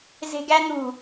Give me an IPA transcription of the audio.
ze̤ɡæn̪ṳ

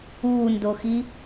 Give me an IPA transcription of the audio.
uːndoxi

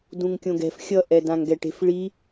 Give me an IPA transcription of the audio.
dũŋkʲõɡɛ̤f xʲʌ ʔɛdãŋɡɛʈe̤f ɭi

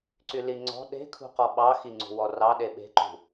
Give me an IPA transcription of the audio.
ǀyliŋ͡ǀɔ̤ ɗe̤kʰṳqɔ ɓɑxi ŋ͡ǀṳwɔrɑ ɗeɓe̤ǃṳ

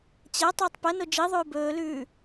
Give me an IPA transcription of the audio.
t͡ɕɐ tˤɵːtˤpɐno d͡ʒiðˤʉː bɵːlʉː

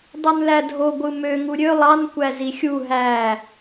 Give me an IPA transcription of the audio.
dˤunlædʱo ɡʷɯmø ŋuɾʲø lˠɑn kʷæzixʲu ɦæ

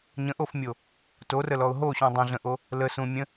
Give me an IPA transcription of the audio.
ɲə̃ʔofmʲo | torəlɔʊ̯ ɦoɕũ dˤə̃ɮə̃ʔo | ləsũmʲə̃

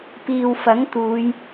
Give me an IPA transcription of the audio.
piː˨w fɐ˨˥ŋt̪uː˨˧j

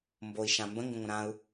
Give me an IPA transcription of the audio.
mboi̯ʃã mbə̃ŋɡə̃ŋʷə̃ ɾãu̯

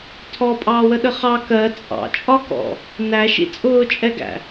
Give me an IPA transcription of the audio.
tʰɔpʼɑːwəɗə χɑ kɜ t͡sʼɑ̰t͡ʃʼɒkɔ̰ | næʃḭ t͡sʼʊːt͡ʃʼɛɡæ̰

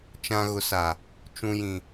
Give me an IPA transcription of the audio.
t͡ʃã˨ɣʊ˨sa˨ | t͡ʃũ˨jĩ˨

